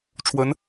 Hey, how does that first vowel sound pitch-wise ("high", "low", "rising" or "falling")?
rising